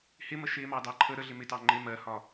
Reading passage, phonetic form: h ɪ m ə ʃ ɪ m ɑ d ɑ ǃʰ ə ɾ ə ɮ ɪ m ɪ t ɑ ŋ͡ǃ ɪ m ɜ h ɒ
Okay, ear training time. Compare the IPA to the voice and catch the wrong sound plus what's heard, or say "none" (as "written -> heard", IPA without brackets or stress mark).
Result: none